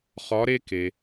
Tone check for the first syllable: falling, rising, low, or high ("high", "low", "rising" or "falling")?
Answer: rising